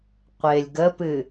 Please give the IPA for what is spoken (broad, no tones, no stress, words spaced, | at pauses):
qʷɪːlʲɡəpɨ